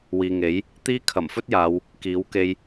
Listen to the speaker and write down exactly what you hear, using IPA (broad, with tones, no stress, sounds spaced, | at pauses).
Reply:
w iː˨ ŋ e˨˥ j | t̪ iː˥ kʰ ɐ˨˩ m f ɵ˥ t̚ j aː˨˧ w | k iː˨˥ w k e˧ j